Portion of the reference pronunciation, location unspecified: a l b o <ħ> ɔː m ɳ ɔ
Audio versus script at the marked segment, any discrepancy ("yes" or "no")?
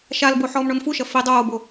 no